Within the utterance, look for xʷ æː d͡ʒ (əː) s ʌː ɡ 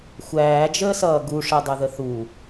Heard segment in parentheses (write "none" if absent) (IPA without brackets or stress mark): əː